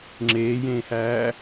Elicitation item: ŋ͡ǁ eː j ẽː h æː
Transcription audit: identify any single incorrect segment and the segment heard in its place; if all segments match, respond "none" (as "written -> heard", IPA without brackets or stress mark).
none